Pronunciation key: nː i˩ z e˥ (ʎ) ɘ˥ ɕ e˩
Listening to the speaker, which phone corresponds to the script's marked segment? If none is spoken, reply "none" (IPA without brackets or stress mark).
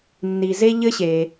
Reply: ʎ